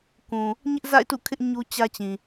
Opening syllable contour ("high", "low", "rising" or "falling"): low